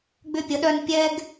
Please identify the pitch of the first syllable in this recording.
high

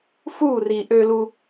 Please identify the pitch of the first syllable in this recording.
falling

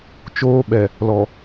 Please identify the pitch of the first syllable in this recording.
high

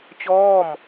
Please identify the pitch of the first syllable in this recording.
falling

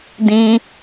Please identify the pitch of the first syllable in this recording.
high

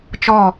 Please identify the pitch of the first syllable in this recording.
falling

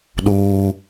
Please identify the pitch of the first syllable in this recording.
low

